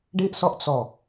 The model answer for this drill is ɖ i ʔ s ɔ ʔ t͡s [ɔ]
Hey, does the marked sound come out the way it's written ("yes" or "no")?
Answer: yes